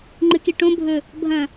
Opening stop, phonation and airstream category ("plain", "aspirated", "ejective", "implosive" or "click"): click